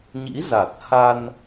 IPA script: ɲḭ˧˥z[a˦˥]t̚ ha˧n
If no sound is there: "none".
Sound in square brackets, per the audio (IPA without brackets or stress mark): a˨˩